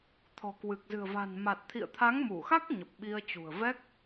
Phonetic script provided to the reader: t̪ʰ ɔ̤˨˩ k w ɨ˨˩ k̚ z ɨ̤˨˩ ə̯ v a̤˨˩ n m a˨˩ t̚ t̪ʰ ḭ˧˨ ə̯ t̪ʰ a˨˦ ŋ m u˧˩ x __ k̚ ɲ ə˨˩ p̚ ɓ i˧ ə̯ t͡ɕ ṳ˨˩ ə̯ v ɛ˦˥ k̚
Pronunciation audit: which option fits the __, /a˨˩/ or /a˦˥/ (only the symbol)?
a˦˥